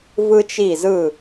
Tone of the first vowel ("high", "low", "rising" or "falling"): high